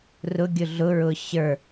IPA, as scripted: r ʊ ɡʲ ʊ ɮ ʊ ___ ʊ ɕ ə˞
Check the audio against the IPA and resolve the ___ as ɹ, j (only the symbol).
ɹ